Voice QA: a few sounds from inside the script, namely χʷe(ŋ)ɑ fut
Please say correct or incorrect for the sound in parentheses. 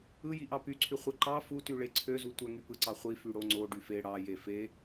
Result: incorrect